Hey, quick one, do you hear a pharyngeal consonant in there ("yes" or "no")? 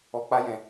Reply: no